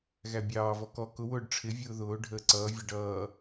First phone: ɣ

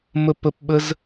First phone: m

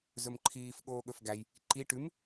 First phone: z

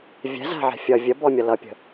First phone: vʲ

